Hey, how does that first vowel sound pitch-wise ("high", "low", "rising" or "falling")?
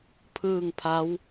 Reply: falling